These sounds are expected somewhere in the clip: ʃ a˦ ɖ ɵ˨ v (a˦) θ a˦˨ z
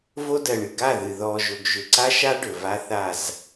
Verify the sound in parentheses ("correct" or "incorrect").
correct